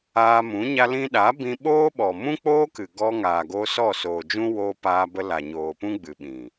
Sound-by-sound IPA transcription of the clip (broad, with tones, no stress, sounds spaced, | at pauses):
aː˧ m ũ˨˦ ɲ a˧ l ĩ˧ ɗ a˨˦ b ĩ˧ ɓ oː˦ ɓ ɔ˨ m ũ˦ k͡p oː˦ k ɨ˨ ɡ ɔ˧ ŋ aː˨ ɡ o˧ s ɔ˦˨ s oː˨ d͡ʒ ũ˦ w oː˧ p aː˧ b ə˧ l a˨ ɲ oː˨ p ũ˦ ɡ͡b ɨ˨ ɓ ĩ˨